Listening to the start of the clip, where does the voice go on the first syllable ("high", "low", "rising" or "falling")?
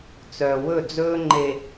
low